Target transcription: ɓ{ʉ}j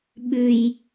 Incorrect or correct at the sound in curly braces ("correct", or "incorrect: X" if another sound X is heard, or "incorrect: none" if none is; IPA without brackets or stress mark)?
correct